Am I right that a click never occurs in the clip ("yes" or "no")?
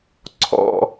no